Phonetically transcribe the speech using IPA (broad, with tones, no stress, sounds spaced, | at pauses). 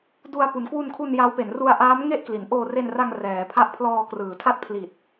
d u˧ a̯ p u˩˦ n k w u˧ n kʰ u˧ n j a˦˥ w p e˩˦ n r u˧ a̯ ʔ aː˦˥ m ŋ e˥˩ ʔ k l i˩˦ n ʔ oː˧ r e˧ n r a˧ ŋ r ɛː˩˦ pʰ a˦˥ ʔ pʰ l ɔː˧ k r ɯː˩˦ tʰ a˥˩ t̚ pʰ l i˨˩ t̚